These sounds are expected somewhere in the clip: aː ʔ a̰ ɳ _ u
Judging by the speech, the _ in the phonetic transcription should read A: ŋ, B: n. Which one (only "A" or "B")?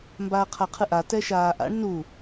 B